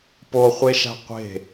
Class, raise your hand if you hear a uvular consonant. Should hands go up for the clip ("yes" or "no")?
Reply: yes